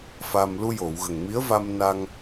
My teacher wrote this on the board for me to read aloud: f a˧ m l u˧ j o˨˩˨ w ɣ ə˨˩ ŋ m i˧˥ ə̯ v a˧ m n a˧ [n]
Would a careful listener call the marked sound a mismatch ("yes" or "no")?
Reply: yes